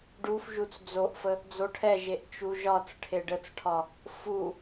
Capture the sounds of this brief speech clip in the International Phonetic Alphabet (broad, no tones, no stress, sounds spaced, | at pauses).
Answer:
ɖ u f ʒ u t͡s d͡z o ʔ f ə | d͡z o ʈʰ ɛ ʒ e ʔ t͡ʃ u ʒ ɒ t͡s ʈʰ e ɖ ə t͡s ʈʰ ɒ | f u